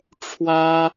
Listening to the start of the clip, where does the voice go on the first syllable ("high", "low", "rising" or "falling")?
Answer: high